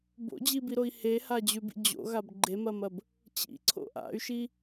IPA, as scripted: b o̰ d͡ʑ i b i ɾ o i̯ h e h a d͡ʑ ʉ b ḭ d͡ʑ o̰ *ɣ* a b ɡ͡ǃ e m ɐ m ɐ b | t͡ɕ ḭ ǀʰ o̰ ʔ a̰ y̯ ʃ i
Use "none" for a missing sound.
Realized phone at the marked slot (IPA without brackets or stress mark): ɣ